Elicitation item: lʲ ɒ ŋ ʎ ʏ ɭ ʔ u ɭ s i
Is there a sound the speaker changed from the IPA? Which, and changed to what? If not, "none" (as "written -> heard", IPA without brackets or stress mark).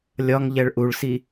ʏ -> ɛ